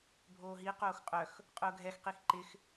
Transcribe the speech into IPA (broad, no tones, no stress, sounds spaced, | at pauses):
bʱ oː ɦ i q oː x qʼ œ x | qʼ ʊː ɡʱ ɛ x q i x ǃ ɪ x